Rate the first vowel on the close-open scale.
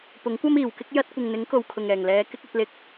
close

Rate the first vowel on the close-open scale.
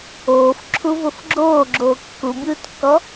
mid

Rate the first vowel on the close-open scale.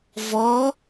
mid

